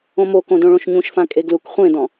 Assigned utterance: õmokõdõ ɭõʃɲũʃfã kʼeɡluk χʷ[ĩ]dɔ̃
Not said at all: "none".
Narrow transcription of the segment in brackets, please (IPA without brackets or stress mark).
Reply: ẽ